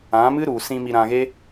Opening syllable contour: rising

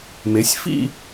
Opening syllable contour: rising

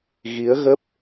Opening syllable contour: rising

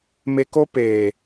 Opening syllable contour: low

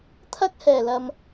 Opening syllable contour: high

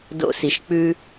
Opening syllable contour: high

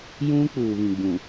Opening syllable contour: high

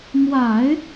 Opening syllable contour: low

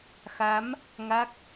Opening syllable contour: rising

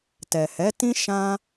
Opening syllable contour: low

